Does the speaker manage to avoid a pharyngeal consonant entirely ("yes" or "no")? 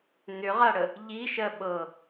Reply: yes